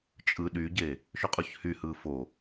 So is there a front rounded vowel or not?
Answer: yes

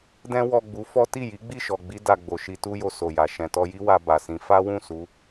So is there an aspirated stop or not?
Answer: no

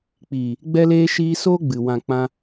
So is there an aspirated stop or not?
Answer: no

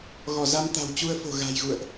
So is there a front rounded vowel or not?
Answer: no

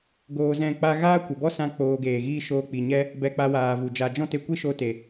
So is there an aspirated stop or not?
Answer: no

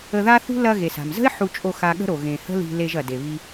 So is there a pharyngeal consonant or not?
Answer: yes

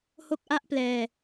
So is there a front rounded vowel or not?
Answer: no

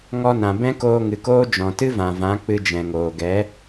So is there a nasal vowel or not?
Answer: yes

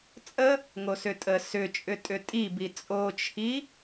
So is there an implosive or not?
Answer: no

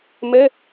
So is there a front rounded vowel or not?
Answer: no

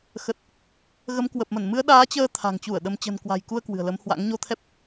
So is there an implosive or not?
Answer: yes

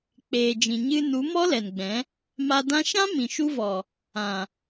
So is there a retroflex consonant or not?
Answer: no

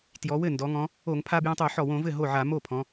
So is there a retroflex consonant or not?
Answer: no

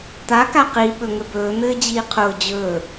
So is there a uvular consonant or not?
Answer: yes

